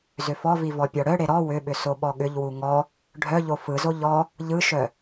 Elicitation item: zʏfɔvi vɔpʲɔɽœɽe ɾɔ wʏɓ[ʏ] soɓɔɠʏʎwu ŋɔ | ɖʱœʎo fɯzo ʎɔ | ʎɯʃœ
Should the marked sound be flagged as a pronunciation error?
no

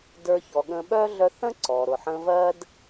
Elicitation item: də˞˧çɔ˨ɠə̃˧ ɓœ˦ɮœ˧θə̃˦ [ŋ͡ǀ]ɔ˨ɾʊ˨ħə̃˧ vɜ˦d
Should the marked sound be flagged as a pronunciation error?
yes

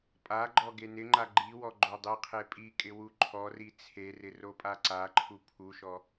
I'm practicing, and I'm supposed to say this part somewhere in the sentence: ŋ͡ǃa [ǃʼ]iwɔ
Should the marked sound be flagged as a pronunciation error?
yes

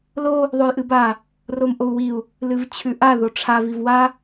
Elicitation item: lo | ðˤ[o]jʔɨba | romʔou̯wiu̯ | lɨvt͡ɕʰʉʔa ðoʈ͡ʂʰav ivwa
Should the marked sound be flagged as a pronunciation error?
no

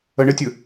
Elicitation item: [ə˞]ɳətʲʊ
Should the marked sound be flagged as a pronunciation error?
yes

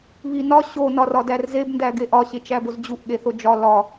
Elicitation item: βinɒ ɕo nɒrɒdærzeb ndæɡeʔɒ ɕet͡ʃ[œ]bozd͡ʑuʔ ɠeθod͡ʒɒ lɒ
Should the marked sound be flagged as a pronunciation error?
yes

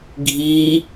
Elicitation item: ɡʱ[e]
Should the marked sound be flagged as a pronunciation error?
yes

